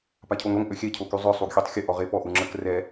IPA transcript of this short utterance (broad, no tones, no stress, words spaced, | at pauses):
pacʰoŋɾoŋ ʔøxʲɛ cʰokyzˤœ sˤuɡxʲøtˤxʲə ʔɔʁepɔ ʔuŋ͡ǁək rɛ